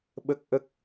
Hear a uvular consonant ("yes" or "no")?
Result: no